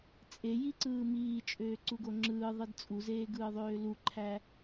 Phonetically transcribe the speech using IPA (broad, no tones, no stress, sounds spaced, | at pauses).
t͡sʼ e j i ǀ ɯː m iː t͡ʃʼ øː ǀ u ɡ o ŋ͡ǁ ɯː ðˤ ɯ d t͡sʼ u z eː ɡ ɯː ðˤ øː l u ǃʰ æ